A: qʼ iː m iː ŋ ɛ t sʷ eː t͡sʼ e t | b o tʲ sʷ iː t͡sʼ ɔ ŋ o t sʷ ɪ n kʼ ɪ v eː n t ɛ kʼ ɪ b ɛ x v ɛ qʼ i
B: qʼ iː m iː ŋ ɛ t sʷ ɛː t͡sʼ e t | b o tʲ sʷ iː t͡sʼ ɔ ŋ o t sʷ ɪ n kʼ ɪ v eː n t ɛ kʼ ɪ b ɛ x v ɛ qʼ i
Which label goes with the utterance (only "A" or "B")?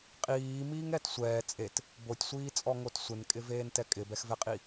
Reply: B